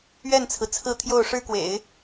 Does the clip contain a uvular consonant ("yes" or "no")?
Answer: no